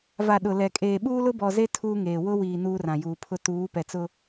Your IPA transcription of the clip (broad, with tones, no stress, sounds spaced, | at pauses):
v a˨ ɗ ʊ˨ l ɛ˨ kʼ eː˨ ɓ uː˦ l ʊ˦ b ɔ˨ z e˦ tʰ uː˦ ŋ eː˨ w ʊ˦ w iː˨ n uː˦ r ã˨ j uː˨ pʰ ʊ˦ t uː˨˦ p ɛ˨ t͡s ʊ˦